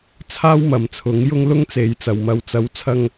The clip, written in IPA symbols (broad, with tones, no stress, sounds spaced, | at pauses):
t͡sʰ aː˥ w m ɐ˨ m t͡sʰ ʊ˨˥ ŋ j ʊ˥ ŋ l ʊ˥ ŋ t͡s e˨˧ j t͡s ɐ˨ w m ɐ˨ w t͡s ɐ˨˥ w t͡sʰ ɐ˧ ŋ